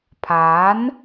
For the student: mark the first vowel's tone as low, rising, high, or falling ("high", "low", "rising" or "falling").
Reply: rising